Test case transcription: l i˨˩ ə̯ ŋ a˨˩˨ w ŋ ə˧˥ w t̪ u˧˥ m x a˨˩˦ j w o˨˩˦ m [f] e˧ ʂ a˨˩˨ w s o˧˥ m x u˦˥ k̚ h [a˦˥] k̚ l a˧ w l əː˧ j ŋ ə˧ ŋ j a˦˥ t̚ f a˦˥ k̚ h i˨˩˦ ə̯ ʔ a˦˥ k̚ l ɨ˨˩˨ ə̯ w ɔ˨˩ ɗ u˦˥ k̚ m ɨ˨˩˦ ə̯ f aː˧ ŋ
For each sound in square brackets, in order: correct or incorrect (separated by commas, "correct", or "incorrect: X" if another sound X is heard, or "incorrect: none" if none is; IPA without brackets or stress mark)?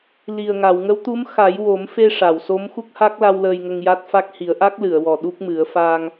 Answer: correct, correct